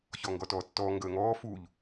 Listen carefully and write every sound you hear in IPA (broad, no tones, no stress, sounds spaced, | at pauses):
ç ɔ ŋ ɡ ɔ t ɔː tː ɔː ŋ ɡ əː ŋ ɔː f u ʎ